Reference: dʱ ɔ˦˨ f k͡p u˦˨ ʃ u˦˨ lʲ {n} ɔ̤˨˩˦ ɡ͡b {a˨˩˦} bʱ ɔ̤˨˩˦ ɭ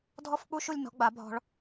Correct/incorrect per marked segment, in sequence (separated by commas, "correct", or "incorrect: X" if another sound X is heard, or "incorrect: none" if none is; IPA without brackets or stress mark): correct, correct